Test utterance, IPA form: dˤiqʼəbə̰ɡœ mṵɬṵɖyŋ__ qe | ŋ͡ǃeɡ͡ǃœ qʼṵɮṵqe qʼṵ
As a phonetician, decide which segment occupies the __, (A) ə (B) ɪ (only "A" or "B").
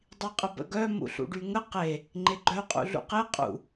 A